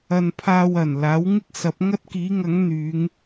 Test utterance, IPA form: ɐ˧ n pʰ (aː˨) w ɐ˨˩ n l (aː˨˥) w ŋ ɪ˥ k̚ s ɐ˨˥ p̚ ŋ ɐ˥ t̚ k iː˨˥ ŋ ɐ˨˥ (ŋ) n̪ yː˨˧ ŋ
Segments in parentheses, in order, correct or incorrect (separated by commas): incorrect, correct, correct